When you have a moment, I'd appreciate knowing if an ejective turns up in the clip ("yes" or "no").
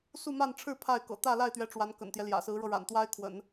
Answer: no